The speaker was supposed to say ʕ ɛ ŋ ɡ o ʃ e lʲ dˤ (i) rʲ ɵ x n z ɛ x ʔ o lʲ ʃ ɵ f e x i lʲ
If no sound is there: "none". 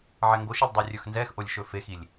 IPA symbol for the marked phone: i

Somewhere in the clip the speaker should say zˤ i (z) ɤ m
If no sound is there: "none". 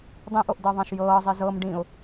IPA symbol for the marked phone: z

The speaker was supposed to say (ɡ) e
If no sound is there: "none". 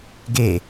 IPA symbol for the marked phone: ɡ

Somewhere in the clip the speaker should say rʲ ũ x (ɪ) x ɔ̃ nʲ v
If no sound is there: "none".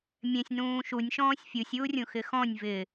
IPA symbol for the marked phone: ɪ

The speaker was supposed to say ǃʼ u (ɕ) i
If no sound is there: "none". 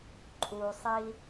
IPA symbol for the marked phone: sˤ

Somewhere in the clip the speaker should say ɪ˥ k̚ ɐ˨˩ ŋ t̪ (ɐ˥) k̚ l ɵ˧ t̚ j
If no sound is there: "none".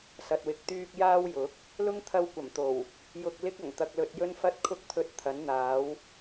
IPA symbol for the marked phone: ɐ˧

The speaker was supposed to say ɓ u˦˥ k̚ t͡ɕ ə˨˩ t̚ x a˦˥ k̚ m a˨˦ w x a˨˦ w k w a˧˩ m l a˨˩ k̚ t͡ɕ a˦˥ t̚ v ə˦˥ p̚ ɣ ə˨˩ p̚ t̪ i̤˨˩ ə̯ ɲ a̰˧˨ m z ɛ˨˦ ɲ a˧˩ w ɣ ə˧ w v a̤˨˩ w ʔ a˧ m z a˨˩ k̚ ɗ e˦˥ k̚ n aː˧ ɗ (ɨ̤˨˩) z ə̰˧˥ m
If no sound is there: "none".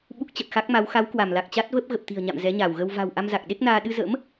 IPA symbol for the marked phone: ɨ˧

